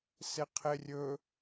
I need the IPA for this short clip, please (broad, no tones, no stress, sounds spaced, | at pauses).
s e qʰ e rʲ ɵ